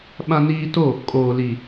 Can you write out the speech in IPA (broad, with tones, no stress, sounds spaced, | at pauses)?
ɓ ã˦ n iː˦ t o˦˨ | kʼ oː˨ l i˨